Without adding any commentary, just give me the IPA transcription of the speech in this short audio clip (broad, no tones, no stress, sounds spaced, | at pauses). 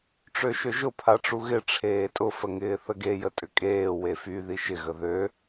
ʈ͡ʂ ø ʃ ø ʒ ʊ pʰ a ʈ͡ʂ u ɣ ɪ ʈ͡ʂʰ eː tʼ ʊ f ə ŋ ɪː θ ə ɡ e j ə tʼ ʏ kʼ eː w e f y ð i ʃ ɪ ɣ ə ð ø